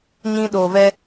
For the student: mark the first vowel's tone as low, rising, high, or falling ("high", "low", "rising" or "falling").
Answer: high